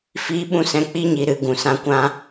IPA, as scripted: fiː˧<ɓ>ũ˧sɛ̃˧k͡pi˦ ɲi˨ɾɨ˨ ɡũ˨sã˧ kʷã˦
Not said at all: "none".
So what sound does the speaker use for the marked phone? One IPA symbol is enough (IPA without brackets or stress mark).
ɓ